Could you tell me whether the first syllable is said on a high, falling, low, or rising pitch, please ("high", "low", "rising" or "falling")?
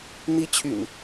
high